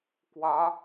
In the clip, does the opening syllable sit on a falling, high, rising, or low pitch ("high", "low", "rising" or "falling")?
rising